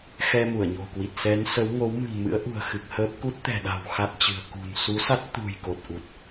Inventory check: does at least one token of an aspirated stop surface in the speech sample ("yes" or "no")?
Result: no